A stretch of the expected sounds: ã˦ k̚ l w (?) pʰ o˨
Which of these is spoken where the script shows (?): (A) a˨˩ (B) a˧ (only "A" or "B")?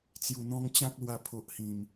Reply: B